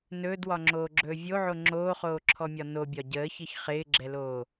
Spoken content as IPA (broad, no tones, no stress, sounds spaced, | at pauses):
n ɵː d w ɒ ŋ͡ǁ oː ɡ͡ǁ ɵː vʲ o ʕ o ŋ͡ǁ oː χ oː ǁʰ ɔ mʲ ɒ n o bʲ ɒ ɟ əː ç ɪ ç χ ɪː ɡ͡ǁ ɛ l oː